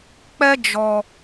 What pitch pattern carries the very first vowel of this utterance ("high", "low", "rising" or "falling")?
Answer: high